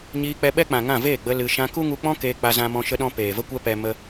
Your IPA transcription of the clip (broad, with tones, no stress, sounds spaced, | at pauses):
ɲ iː˧ k͡p ɛ˧ ɓ ɛ˦ k͡p ã˨ ŋ ã˦˨ v eː˦˨ ɡ͡b ə˧ l ɨ˧ ʃ ã˧ k u˦ ŋ u˧ k͡p ɔ̃˦ k eː˧ k͡p a˧ z ã˧ m ɔ̃˧ ʃ ə˧ ɗ ɔ̃˧ p eː˨ v ə˦ kʷ ɛ˦ p ɛ˧ m ə˧